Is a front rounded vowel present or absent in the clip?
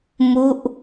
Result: absent